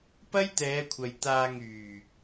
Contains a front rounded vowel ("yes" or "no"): yes